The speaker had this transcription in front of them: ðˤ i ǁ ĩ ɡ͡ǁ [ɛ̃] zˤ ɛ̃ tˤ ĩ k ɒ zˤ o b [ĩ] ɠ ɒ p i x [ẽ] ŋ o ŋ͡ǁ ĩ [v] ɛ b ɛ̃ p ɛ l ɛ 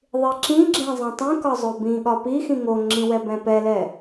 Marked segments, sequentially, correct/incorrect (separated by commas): correct, correct, incorrect, incorrect